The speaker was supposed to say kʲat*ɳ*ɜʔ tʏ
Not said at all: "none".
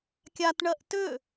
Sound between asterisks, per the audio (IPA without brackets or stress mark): ɳ